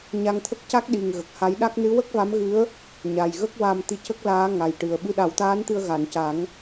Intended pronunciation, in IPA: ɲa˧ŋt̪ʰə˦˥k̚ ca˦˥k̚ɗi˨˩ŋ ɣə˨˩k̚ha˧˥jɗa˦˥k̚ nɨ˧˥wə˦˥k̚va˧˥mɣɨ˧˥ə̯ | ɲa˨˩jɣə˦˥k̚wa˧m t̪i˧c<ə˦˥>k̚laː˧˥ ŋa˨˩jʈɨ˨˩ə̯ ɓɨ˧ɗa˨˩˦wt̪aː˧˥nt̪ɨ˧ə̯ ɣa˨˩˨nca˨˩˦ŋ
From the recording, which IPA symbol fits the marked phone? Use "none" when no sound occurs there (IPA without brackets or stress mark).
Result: ə˦˥